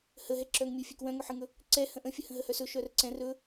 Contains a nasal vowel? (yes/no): yes